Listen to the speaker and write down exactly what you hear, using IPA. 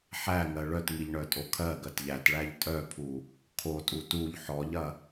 ħ æ ŋ ɜ ɭ œ t ŋ i ʎ ɳ œ tʼ o kʰ ɜ ɡ ɜ t ʎ æ t ɭ æ ʎ tʼ œ pʰ u | kʰ o tʼ u t u ʎ ħ ɔ ʎ ɐ

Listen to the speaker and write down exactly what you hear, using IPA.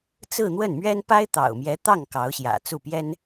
t͡s ɹ̩˥˧ n̪ w ə˥˩ n m ɥ ɛ˥ n p a˥ ɪ̯ t̪ ɑ̰˨˩ ʊ̯ m j ɛ˧˥ t̪ ɑ˥˩ ŋ k ɑ˧˥ ʊ̯ ɕ j ä̰˨˩ t͡s u˥˩ p j ɛ˥ n

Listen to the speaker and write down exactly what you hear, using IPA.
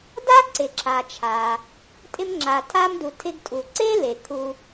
d a˥ ǀ ɪ˩ ǁ a˩ t͡ʃʰ a˩ | tʼ ɪ˧ m ŋ͡ǁ a˩ tʰ a˧ m d u˩ tʰ ɪ˧ ɡ tʼ u˩ ǀ e˥ l e˩ kʰ u˧

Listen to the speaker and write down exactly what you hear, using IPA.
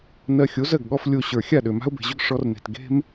n ɜ˧ xʲ o˨˦ z ɜ˨ ɡ ɠ ɔ˧ f lʲ o˧ ɕ ə˞˨ xʲ a˦˨ ɗ ø˨ m a̤˦ ʊ̯ b e̤˨ ʑ ʏ˦ ɡ ʂ ɔ˧ r n e̤˨ t ɡ e̤˦ m

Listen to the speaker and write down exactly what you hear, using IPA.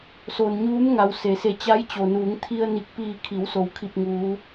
s o˩ n ɲ uː˧˥ m ŋ a˩˧ w s e˩˧ s e˧˩ t͡ɕ a˧˥ j t͡ɕ o˩ n uː˩˧ ŋ t̪ʰ i˧ ə̯ n i˧˩ k̚ p iː˧˩ kʰ i˩˧ w s o˩˧ w kʰ i˧˩ p̚ ŋ uː˩˧

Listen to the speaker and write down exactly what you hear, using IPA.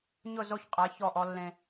ɲ ʊ˦˨ z o˦ ç qʼ æ˨˦ ç ɔ˦˨ ʔ ɔ˦ lː ẽ˦

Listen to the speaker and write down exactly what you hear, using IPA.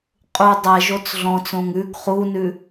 qʼ u dˤ ɛ ʒ o t͡s ɮ ɔ̃ t͡s õ ŋ ʉ ɡ χ u n ʉ

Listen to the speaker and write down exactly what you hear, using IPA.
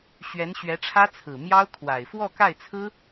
ɕ ɥ ɛ˧˥ n ɕ ɥ ɛ˧˥ ʈ͡ʂʰ ä˥ t͡sʰ ɹ̩˨˩ m j ɑ˥ ʊ̯ kʰ w a˨˩ ɪ̯ f w ɔ˥˧ k a˥˩ ɪ̯ t͡sʰ ɹ̩˥

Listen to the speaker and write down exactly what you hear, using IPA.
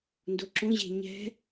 n d o ǁ õ ʑ e̤ ɲ ɛ̤

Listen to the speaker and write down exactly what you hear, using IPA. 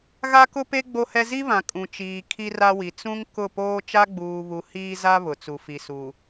ɣ a˦ k ʊ˦ p e˦ ɡ͡b o˦ h ɛ˦ z i˦ β ã˨ kʼ ũ˨ t͡ʃ iː˨ kʰ i˦ r a˦ w i˨ t͡s ũ˦ ŋ k ʊ˦˨ p oː˦ t͡ʃ a˦ ɡ͡b uː˨ β u˨ h iː˦ z a˦ β ʊ˨ t͡s u˨ f i˨ s u˨

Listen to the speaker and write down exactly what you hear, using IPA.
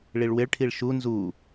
ɭ i ɭ w ɪ ɭ ʈʰ i ɭ ʃ u n z u

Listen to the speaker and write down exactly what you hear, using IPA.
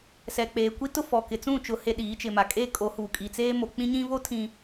s ɛ˨ k͡p eː˨ kʷ i˦ t ʊ˦ f ɔ˨ k ɪ˨ t͡s ũ˦˨ t͡ʃ ʊ˨ h e˨ ɗ iː˨˦ t͡ʃ ɪ˨ m a˨ kʼ eː˦ kʼ o˨˦ h uː˨ kʼ i˨ t͡s eː˦ m o˨ k͡p ĩ˦ ɲ ĩ˦ β o˦ tʰ ĩ˨

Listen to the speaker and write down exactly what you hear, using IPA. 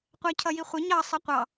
qʷ æ cʰ ʌ j i χʷ ʌ ɲ ɑ sˤ ʌ qʷ ɑ

